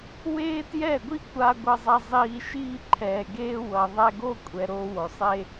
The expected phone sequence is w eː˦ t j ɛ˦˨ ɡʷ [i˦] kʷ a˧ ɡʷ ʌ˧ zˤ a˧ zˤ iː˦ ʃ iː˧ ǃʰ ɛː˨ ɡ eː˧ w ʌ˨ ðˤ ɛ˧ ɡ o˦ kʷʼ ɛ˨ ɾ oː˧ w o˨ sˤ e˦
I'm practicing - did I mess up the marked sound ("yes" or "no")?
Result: no